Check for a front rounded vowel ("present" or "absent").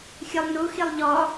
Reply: absent